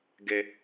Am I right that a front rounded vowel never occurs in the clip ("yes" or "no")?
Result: yes